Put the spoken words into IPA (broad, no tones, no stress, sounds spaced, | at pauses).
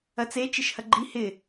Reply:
ɐ t͡s e t͡ʃ ɪ ʃ h ɐ ɡ͡ǃ i h ɪ